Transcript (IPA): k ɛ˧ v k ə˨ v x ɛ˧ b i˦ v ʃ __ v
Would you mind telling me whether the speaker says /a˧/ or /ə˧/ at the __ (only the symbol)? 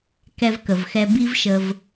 ə˧